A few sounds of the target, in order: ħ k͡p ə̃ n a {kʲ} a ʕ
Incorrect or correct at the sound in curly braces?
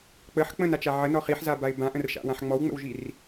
incorrect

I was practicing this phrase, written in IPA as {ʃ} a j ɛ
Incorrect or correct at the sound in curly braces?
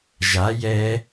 incorrect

